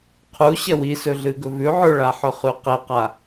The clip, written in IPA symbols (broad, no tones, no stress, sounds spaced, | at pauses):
qʰ u ɕ ɐ w i s ɵ ɮ ɨ ɡ ɵ v ʉ ʕ ɵ ɭ a ħ ɵ χ ʉ q e q a